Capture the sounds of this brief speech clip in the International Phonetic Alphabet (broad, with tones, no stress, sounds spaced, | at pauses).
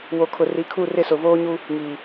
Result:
w o˨ kʰ ʊ˨ r i˨ kʰ u˦˨ r ɪ˦˨ s ʊ˨ v oː˦ ɲ u˦ | ŋ iː˨